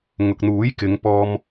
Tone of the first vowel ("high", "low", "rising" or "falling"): low